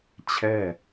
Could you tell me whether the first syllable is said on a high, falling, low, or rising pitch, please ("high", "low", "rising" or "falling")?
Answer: falling